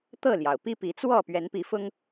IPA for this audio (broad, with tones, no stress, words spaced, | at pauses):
t̪ɤ˥˨ljɑ˩ʊ̯ pi˦pi˨˦t͡swɔ˥˨ pɥɛ˨˦npi˨˦fʊ˦ŋ